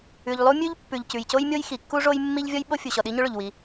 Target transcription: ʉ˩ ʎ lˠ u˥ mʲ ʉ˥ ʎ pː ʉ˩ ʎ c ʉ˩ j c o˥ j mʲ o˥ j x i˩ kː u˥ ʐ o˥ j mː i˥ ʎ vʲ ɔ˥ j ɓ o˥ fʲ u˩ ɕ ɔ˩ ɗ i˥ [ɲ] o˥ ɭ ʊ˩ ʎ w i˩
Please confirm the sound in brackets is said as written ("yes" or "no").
yes